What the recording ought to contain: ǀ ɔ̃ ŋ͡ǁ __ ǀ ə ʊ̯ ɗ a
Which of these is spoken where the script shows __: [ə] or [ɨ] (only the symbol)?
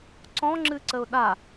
ɨ